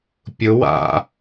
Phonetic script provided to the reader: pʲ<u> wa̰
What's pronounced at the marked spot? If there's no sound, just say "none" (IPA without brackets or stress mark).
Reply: ʊ